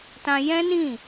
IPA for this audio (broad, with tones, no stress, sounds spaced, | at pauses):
t ã˧ j ɛ̃˦ n ĩ˦˨